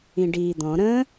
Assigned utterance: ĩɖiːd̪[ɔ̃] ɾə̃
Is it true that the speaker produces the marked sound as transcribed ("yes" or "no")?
yes